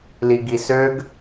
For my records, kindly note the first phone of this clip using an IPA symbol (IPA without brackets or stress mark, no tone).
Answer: l